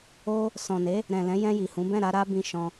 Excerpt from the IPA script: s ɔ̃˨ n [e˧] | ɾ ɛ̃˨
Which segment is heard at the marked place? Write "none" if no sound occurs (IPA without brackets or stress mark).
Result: e˨˦